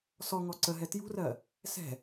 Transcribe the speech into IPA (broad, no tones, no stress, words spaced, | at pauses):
sɔŋɔ ǀəɦɛ tjṳrɜ | sɛ̤